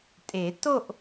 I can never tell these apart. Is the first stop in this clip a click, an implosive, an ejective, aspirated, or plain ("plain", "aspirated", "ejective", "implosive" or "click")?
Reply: ejective